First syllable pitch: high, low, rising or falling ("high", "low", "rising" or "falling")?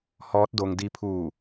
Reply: rising